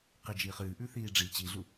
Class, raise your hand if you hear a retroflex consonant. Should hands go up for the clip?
yes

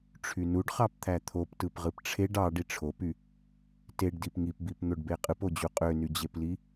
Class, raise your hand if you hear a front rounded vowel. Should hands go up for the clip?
yes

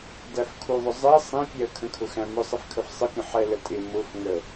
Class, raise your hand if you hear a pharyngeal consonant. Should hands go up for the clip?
yes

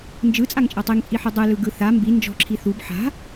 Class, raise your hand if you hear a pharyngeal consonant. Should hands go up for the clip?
yes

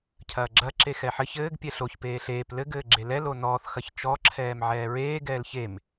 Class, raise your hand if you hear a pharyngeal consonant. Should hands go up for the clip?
yes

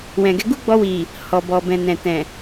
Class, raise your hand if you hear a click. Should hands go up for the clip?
no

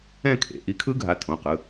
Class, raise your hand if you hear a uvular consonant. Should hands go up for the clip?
yes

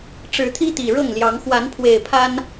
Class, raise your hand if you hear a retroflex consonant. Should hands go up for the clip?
yes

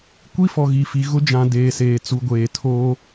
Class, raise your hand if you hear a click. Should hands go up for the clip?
no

